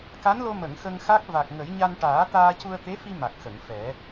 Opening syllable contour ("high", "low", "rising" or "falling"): rising